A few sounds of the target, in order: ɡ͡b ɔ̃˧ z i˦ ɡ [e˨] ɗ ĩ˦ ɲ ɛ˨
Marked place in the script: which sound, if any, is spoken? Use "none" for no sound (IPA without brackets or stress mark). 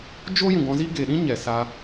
e˨